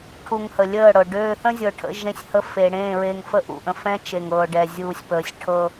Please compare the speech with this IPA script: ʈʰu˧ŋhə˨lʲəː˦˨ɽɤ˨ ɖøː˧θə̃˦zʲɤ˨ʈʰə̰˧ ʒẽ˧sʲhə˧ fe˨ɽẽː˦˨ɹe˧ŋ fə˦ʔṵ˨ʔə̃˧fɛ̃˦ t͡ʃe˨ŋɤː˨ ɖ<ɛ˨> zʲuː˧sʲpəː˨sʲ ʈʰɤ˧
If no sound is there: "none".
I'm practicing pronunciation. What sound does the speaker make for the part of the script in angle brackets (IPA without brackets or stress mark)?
ɛ˧